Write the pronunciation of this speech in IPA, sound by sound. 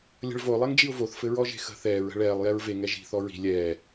lʲ ə̤ ɭ v o lˠ ɛ ŋ d͡ʒ i ʊ̯ v o θ f ɘ ɹ ɔ ʒ e̤ x ə̤ θ ɛː ɹ ə̤ ɭ ɛː lˠ j ɛ ɹ v e ŋ ɛ ʒ i̤ θ ɔ ɹ i̤ lʲ ɛː

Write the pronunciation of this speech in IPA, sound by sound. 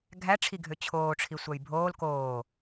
ɡʱ æ ʈ͡ʂʰ i ɡʱ ø t͡ɕʰ oː ʈ͡ʂʰ i sʷ æ j bʱ oː l k oː

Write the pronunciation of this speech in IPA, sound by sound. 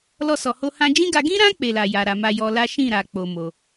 l ɔ˧ s ɔ˨ h o˧ h ã˧ d͡ʒ ĩ˦ ɡ a˧ ɡ ĩ˦ ɾ ã˦ k͡p e˧ l a˨ j a˨ ɾ a˨ m a˧ j ɔ˧ l a˦ ʃ ĩ˦˨ ɾ a˨ k͡p o˨ m o˧

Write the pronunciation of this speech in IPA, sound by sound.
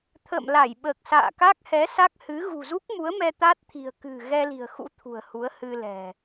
t̪ʰ ə̰ː˧˨ m l a˧˩ j ɓ əː˨˩ k̚ s a̰ː˧˨ k a˦˥ k̚ h ɛ˨˦ s a˦˥ k̚ h ɨ˨˦ ɣ ṳ˨˩ z u˦˥ k̚ m u˨˦ ə̯ m ɛ˧ t̪ a˦˥ t̚ t̪ʰ i̤˨˩ ə̯ k ɨ̤˨˩ ɣ ɛ˧ l i̤˨˩ ə̯ x ṵ˧˥ t̪ʰ ṳ˨˩ ə̯ h u˨˦ ə̯ h ɨ˧ l ɛ̤˨˩

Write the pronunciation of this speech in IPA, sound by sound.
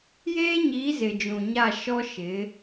j eː˦ ɲ i˨˦ z ɪ˨ d͡ʒ ũ˨ ɲ a˦˨ ʃ ɔ˦ ʃ ɪ˨˦

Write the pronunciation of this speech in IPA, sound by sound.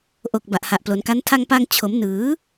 ʔ o˨˩ k̚ b a˨˩ ʔ h a˨˩ ʔ p l o˩˦ n k a˦˥ n tʰ a˧ ŋ p a˧ ŋ t͡ɕʰ o˩˦ m n ɯː˩˦

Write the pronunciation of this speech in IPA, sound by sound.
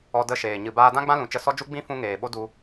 ɔ˧ d ə˦˨ ʃ eː˨ ɲ ɨ˨ b aː˧ d ã˦ ɡ͡b ã˦ l ũ˨ t͡ʃ ə˧ s ɔ˦ d͡ʒ u˦ ɡ͡b ĩ˦ f ũ˧ ŋ eː˨ ɓ o˦ d u˧

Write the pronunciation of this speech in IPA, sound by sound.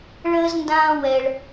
ɭ əː˦ z n d ãː˦ w ɛ˦ ɭ

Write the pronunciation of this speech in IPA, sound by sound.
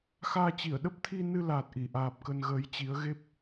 x aː˧ t͡ɕ i˧˩ ə̯ ɗ ə˦˥ p̚ t̪ʰ i˧ n ɨ˧ l aː˨˩ t̚ ʔ i˧˩ ʔ aː˨˩ p̚ k ə˧ n ɣ əː˨˦ j t͡ɕ i˨˦ ə̯ ɣ e˦˥ p̚

